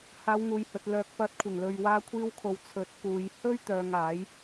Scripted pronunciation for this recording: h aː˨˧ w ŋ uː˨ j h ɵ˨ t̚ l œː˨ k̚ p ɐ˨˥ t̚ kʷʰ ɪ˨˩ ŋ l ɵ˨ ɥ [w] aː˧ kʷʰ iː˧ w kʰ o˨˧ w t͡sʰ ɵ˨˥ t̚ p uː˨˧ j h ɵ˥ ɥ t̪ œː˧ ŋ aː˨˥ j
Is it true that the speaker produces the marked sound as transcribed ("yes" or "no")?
yes